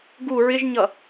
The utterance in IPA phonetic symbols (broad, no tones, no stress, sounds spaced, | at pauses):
ɡ u ɹ ɪ ʒ ɲ ʌ